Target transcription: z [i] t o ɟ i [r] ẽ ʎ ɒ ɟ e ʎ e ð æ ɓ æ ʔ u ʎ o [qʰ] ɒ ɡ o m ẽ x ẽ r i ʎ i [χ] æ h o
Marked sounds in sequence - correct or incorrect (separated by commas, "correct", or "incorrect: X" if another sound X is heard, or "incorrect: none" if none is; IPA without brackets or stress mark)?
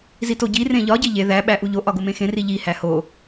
correct, correct, incorrect: ʔ, incorrect: h